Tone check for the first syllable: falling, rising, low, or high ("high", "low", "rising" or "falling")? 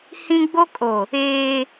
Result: high